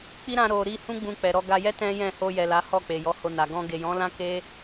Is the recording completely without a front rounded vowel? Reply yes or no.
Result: yes